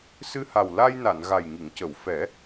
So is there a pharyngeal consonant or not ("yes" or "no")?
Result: no